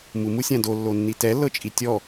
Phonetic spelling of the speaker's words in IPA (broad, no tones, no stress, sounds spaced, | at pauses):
m u m u sʲ ã d o lː o nː i t ɛ lː ɤ t͡ʃʼ i tʲ ɔ